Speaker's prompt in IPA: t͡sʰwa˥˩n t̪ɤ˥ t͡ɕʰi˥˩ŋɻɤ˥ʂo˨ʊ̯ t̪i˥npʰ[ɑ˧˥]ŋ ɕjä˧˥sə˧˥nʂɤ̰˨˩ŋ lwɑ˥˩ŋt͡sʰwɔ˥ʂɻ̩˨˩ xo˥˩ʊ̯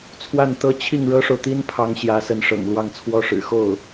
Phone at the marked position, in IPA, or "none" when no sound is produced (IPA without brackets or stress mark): ɑ˧˥